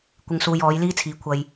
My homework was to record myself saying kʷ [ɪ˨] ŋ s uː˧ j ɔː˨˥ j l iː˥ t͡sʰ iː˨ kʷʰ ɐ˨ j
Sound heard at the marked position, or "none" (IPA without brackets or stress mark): ɪ˧